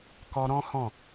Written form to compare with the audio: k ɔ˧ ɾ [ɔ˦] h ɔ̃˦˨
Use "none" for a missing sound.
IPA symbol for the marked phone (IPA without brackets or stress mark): ɔ̃˦